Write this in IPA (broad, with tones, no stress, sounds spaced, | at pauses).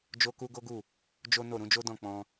d͡ʒ o˦ k u˦ ɡ o˦ ɡ u˦˨ | d͡ʒ o˦ n o˦˨ ɾ ũ˨˦ d͡ʒ o˦ d ɔ̃˦˨ k͡p ɔ̃˧